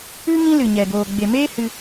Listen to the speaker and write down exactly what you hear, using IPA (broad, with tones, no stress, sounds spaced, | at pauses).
ɨ˦ ŋ ĩ˦ l ɨ˨ ɲ ɛ˨ ɡ oː˨ ɡ͡b e˨ m eː˦ h ɨ˦